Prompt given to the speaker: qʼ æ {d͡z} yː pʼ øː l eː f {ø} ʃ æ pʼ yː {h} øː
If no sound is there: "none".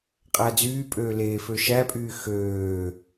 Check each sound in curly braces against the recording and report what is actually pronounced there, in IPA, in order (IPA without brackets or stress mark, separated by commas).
d͡z, ø, x